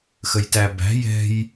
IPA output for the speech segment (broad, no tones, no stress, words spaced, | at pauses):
xəjtæbæ̤ jɛ̤j